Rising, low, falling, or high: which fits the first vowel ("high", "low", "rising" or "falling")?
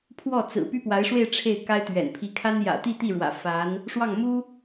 falling